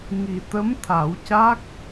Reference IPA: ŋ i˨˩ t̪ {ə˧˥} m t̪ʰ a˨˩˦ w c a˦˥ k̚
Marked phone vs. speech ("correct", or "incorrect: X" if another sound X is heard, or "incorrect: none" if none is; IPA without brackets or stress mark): correct